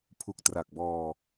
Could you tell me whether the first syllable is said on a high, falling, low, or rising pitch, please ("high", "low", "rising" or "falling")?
low